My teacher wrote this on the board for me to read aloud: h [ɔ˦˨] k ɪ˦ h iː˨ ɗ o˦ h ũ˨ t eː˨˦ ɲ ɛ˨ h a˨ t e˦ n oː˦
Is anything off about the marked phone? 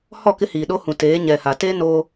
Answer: no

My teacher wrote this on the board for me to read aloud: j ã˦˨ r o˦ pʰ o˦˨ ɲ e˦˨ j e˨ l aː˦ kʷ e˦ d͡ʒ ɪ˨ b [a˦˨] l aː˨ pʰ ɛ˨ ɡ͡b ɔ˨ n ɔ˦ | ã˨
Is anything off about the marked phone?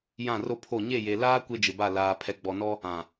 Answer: no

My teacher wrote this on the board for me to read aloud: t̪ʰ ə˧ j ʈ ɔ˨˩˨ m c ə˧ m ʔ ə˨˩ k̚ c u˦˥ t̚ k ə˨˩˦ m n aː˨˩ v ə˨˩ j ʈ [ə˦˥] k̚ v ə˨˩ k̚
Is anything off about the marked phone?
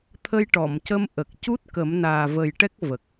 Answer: yes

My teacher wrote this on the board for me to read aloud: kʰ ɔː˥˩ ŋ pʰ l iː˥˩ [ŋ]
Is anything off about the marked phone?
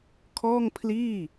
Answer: yes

